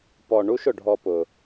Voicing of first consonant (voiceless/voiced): voiceless